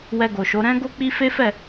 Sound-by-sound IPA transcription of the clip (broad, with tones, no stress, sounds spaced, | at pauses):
w ɛ˧ ɡ o˨ ʃ o˨˦ ɾ ɛ̃˦ ɡ o˦ k͡p i˦ f e˦ f ɛ˦˨